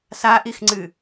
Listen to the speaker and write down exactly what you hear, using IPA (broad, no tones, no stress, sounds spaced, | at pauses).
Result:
s a ʔ i x ŋ͡ǀ ɨ